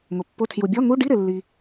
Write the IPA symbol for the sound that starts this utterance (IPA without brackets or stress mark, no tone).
ŋ